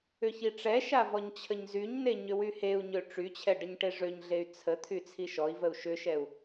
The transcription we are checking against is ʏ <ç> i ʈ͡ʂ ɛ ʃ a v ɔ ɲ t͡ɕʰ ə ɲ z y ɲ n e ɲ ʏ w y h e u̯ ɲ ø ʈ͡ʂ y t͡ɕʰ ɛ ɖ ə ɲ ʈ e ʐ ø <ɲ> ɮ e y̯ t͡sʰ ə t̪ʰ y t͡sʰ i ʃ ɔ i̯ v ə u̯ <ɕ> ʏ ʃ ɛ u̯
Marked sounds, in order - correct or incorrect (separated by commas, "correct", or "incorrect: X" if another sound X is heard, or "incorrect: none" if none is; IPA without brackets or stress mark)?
correct, correct, incorrect: ʃ